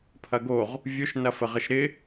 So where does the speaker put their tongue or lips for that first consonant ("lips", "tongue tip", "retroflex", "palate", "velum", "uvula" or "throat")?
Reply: lips